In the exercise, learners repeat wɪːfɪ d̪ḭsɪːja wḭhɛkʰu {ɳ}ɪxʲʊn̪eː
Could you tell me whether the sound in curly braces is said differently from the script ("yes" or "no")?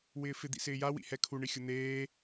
no